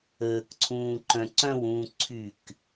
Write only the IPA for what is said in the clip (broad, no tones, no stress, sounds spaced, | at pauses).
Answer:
əː k ǀʰ ũː ǃ œ̃ ǀ œ̃ w ũː ǀʰ y k